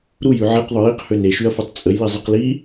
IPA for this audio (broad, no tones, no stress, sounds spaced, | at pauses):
ɾ u j y ʕ e q ðˤ ʊ j i q h ø n e ʃ y ɐ̯ f ɛ tˤ t͡sʼ ə j l i zˤ i q l i